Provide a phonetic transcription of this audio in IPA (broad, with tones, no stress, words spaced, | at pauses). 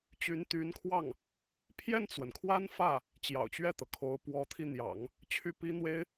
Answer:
t͡ɕy˧˥nt̪y˧˥nkʰwɑ˥˩ŋ | pʰjɛ˥˩nt͡swə˩nkʰwa˥n fä˥˩ | t͡ɕjɑ̰˨˩ʊ̯t͡ɕɥɛ˥˩t̪ɤ˩kʰo˧˥ʊ̯ pwɔ˧˥t̪ʰi˧n̪jɑ̰˨˩˦ŋ | t͡ɕʰy˥˩pi˥n̪we˥ɪ̯